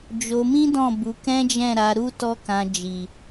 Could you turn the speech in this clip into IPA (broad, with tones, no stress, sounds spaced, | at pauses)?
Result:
d͡ʒ o˧ m ĩ˦ d ɔ̃˦˨ b u˧ k ɛ̃˦ d͡ʒ ɛ̃˦˨ ɾ a˧ ɾ u˦ t ɔ˦ k ã˧ d͡ʒ i˨